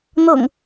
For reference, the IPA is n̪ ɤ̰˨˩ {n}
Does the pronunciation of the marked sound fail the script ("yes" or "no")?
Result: yes